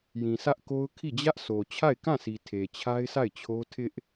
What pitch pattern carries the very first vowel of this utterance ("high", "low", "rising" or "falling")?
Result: low